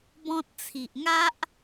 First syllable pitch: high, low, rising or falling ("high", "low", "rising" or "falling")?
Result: high